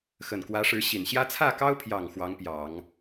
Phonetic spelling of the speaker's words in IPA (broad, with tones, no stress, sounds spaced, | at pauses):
x ə˨˩ n k w ä˧˥ ʂ ɻ̩˧˥ ɕ i˨˩ n ɕ j ä˥ t͡sʰ ä˥˩ k ɑ˥ ʊ̯ pʰ j ɑ˨˩ ŋ x w ɑ˧˥ ŋ p j ɑ˨˩˦ ŋ